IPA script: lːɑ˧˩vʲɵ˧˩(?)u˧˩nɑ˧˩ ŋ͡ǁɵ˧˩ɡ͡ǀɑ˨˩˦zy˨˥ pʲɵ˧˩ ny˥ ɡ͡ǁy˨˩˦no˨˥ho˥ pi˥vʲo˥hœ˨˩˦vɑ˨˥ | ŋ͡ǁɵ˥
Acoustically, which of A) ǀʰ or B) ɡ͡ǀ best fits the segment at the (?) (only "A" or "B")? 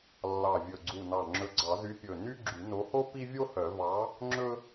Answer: B